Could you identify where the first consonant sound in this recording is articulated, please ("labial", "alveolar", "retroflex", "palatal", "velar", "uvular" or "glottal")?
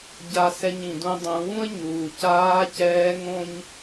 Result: palatal